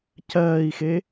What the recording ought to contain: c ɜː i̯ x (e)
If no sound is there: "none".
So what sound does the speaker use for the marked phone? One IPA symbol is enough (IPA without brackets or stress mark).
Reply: e